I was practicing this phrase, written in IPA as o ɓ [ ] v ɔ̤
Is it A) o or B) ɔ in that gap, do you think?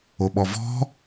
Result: B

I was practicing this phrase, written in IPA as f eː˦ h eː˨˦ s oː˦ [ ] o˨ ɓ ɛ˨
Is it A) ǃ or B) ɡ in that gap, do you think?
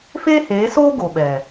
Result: B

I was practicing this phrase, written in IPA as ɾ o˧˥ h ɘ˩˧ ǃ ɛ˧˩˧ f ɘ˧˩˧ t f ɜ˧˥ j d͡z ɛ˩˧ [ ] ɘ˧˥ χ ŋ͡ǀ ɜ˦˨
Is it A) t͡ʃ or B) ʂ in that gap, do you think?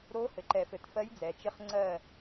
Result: A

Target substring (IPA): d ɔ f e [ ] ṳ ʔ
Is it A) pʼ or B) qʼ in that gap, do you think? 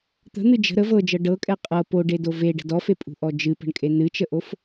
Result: A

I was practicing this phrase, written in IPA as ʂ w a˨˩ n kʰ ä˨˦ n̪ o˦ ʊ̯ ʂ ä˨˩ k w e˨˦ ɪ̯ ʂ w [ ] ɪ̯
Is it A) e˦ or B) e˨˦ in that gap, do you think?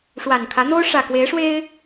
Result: A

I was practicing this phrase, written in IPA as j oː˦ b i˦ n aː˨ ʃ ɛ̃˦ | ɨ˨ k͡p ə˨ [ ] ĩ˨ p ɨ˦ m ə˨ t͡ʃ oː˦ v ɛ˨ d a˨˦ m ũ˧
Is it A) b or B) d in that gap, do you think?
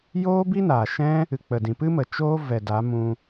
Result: B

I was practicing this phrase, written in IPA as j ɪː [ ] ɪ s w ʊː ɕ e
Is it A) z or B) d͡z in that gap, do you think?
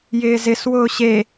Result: A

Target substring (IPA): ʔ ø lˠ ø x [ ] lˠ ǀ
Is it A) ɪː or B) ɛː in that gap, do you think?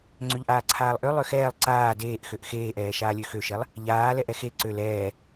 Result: B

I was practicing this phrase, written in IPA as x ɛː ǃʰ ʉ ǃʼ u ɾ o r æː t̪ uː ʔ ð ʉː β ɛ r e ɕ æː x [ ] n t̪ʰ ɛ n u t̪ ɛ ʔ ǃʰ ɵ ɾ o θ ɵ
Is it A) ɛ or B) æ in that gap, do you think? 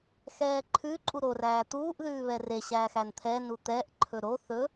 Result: B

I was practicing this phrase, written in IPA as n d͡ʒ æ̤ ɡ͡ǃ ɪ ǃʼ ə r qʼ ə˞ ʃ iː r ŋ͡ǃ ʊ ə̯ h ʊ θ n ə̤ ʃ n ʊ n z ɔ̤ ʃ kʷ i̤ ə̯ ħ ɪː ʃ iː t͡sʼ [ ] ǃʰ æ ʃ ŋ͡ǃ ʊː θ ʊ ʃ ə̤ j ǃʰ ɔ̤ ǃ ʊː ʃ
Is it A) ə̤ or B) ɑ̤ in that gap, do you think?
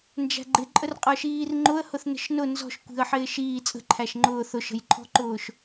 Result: A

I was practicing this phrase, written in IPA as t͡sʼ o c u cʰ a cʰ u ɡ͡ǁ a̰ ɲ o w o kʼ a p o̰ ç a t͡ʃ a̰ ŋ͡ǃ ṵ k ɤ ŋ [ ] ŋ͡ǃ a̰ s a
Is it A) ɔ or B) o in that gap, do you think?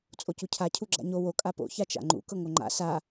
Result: B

